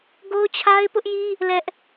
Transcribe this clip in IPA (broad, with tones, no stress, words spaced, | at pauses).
ɡo˦ʊ̯t͡ɕʰa˦ɪ̯ pʊ˦ʔji˦ | lɛ˦ʔ